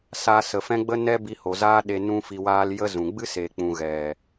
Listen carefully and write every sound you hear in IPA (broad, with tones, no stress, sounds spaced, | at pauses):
s aː˧ s ə˨ f ɛ̃˦ ɡ͡b ə˦ n ɛ˦ b i˧ h o˨ z aː˦ ɗ e˧ n ũ˦ f i˧ w aː˦ l j ə˦ z ũ˨ ɡ͡b ɨ˦ s eː˨ k͡p ũ˨ ɣ ɛ˨